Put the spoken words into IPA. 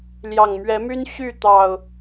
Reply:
l j ɑ˨˩ ŋ m ɥ ɛ˨˦ m y˦ n ɕ y˥˨ t̪ ɑ˨˩ ʊ̯

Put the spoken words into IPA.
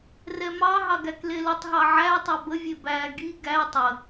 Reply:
r ɛ m ɑ ɦ ɑ ɡ æ k l e l ə tˤ ɦ ɑ ʕ æ tˤ æ b ə vʲ e b æ ɡ i ɡ æ tˤ ə

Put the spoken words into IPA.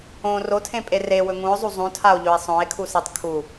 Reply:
õ r o tʰ ẽ pʼ e r e w ɵ ŋ ũ o̯ zˤ u zˤ ũ tʰ a o̯ ʎ ɵ e̯ sˤ õ e̯ kʰ u s e tˤ kʰ u

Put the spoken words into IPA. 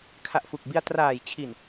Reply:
kʰ a˨˩ ʔ f u˨˩ k̚ b i˧ a̯ t r aː˨˩ j t͡ɕʰ i˨˩ n

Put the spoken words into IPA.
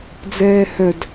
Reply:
d͡z ɛː h œ d

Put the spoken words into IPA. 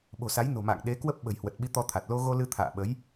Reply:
ɓ o̤˨˩ s a˨˦ j n o̤˨˩ m a̰ː˧˨ ŋ ɗ e˨˦ k w ə˦˥ p̚ ɓ ə̤˨˩ j h w ə˨˩ t̚ ɓ i˧ t̪ ɔ˧ t̪ʰ a˨˩ t̚ l o˧ ɣ o˧ l ɨ˧ t̪ʰ a̰ː˧˨ ɓ ə˨˦ j

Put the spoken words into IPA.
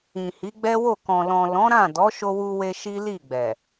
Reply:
ĩ˨ h i˨˦ ɡ͡b ɛ˦ w o˦˨ k ɔ̃˨ l ɔ̃˨ l ɔ̃˨˦ ɾ ã˦˨ d ɔ˨˦ ʃ o˧ w u˧ w e˧ ʃ i˦ l i˦˨ ɡ͡b ɛ˨

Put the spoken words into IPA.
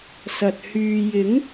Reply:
s ɐ˨ t̚ h yː˨ j ɪ˨˥ ŋ

